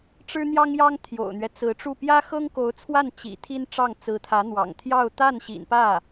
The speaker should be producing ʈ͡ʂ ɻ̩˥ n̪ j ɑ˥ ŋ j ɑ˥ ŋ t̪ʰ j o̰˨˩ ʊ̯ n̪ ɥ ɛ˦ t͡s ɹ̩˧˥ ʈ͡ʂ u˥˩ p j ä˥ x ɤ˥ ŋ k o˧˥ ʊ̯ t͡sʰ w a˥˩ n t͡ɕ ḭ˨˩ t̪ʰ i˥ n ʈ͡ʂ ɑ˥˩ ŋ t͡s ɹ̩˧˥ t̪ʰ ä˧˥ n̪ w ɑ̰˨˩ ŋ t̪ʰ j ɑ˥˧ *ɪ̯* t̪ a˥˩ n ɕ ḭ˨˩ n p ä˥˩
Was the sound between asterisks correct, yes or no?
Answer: no